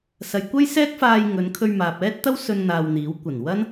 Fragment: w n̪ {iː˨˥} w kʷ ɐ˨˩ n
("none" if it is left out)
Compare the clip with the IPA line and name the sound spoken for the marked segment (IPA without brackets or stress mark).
iː˨˥